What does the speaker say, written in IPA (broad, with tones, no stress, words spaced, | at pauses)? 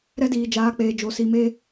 ɾɛ˦diː˨d͡ʒaː˨˦k͡peː˨ d͡ʒo˨ si˨me˦